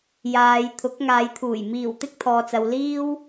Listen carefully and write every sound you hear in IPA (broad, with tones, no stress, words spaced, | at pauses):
jaː˨˧jt̪ʰʊ˨˥k̚ ŋaː˨˧jt̪ʰuː˨˩j miː˨˩w t̪ɪ˥k̚t̪ʰɔː˨t͡sɐ˨w liː˥w